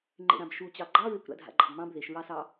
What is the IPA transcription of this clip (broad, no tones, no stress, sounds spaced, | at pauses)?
ŋ͡ǃ ḛ ɾ ã b ʃ u t͡ɕ ɑ ɡ͡ǃ ɑ ɹ e kʷ ɾ a̰ dʱ a̰ ɡ͡ǃ ɑ̰ b m ɑ̃ b ð e ʃ ɹ ɑ s ɑ